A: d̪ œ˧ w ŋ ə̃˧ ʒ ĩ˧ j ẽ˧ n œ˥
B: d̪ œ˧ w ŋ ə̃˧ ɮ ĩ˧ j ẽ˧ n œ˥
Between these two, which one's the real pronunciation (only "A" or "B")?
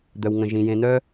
A